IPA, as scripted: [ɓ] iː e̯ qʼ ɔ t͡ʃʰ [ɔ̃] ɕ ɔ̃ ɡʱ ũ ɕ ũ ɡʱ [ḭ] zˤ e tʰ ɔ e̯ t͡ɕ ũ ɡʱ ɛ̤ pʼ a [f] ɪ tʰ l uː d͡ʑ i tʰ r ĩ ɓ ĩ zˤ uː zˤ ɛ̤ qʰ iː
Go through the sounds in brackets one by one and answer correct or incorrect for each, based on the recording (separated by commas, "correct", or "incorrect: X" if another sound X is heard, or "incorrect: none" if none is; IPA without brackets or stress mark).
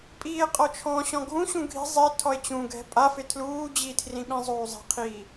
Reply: incorrect: pʼ, correct, incorrect: i̤, correct